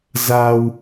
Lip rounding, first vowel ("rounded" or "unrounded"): unrounded